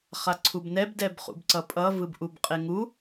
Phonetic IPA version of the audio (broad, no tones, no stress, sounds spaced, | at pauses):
χ a ǀʰ u b n ɛ b d ɛ b χ ṵ b ǀ ʌ pʼ ʌ v ɯ b ʔ u b qʼ e ŋ u